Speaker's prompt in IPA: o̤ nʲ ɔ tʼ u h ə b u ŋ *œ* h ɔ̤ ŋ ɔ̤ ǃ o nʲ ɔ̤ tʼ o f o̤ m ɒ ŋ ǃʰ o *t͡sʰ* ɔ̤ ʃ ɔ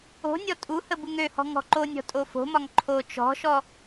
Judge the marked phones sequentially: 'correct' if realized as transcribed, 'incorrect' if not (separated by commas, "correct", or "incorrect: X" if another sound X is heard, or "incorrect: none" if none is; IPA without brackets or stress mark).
incorrect: ø, incorrect: t͡ʃ